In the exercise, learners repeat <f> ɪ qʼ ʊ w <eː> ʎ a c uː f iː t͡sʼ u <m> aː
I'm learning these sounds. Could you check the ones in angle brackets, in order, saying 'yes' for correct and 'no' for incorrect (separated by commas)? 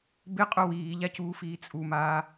no, no, yes